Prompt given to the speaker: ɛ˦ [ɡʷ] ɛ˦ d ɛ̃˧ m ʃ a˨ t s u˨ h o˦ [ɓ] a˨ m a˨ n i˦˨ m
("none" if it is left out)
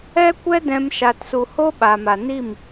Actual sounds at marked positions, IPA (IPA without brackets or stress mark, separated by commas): kʷ, ɓ